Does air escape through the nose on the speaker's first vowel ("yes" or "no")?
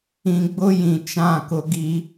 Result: yes